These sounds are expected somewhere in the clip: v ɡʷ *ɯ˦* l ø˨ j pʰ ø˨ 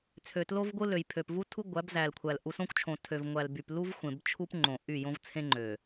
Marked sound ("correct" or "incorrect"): correct